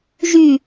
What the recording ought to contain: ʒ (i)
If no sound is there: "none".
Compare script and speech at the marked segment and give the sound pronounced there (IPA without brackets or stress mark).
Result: y